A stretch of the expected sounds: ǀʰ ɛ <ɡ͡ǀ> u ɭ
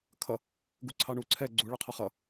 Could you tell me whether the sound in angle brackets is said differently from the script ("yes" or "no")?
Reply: no